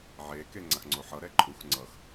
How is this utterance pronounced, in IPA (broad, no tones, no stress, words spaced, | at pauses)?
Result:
ʕeke ŋ͡ǀaxŋ͡ǀoħʌɾɛ ǃʼux ŋ͡ǀʌx